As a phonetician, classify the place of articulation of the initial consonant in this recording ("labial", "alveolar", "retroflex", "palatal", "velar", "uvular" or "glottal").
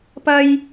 labial